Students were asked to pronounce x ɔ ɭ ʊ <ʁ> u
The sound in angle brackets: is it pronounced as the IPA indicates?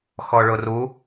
no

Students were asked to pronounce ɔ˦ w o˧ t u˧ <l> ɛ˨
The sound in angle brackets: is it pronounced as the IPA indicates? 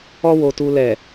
yes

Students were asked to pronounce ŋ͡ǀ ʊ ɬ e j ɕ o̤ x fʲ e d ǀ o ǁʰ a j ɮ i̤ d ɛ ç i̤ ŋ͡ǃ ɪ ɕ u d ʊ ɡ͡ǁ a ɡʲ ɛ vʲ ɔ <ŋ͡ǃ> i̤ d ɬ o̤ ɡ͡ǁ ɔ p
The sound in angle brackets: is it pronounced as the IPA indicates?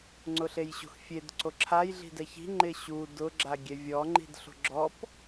yes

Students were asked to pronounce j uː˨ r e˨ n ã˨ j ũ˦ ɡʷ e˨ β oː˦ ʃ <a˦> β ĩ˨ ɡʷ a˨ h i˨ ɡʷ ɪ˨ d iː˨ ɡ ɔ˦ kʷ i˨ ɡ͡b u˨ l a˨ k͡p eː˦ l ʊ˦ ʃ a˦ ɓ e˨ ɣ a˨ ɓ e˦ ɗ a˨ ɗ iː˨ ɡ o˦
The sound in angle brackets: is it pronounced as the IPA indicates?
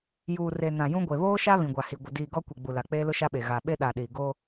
yes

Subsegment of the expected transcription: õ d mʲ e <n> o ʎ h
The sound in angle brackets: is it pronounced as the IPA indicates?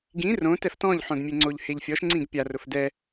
no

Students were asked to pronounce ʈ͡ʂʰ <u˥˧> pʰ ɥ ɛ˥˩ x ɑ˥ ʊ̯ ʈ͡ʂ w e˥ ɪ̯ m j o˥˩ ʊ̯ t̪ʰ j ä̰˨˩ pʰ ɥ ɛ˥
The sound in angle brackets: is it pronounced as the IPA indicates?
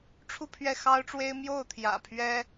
yes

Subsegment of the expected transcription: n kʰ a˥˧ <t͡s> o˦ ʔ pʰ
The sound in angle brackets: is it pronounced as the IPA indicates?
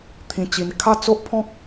yes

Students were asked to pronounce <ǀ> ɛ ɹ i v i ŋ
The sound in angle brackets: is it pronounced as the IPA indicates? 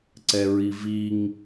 yes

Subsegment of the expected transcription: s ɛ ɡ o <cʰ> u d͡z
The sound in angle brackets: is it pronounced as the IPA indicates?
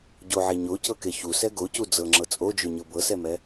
no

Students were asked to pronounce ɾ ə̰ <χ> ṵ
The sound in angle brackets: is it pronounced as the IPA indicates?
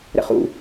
yes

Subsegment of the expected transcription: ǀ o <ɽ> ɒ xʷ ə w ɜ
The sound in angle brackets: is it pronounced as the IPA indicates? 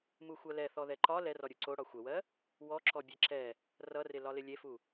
yes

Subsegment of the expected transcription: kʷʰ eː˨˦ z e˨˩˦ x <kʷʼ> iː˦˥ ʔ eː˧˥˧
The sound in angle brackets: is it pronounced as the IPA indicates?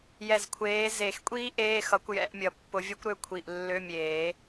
yes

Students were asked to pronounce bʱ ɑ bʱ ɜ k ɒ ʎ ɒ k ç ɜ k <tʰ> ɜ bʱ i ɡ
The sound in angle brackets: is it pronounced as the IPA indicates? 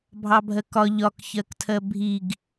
yes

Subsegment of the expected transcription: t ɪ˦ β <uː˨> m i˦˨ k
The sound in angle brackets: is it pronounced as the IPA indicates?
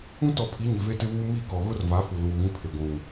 no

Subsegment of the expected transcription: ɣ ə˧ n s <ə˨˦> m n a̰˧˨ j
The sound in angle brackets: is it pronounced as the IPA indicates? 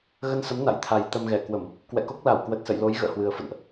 yes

